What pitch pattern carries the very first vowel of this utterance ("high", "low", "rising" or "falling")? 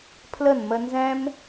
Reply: falling